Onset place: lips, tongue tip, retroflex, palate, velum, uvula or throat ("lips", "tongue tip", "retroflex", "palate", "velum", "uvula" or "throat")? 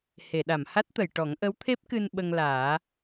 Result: throat